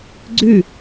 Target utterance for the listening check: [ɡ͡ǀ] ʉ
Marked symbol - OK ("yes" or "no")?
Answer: yes